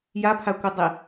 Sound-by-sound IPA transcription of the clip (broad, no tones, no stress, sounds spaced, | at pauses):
j a pʰ a kʷ ɨ dˤ e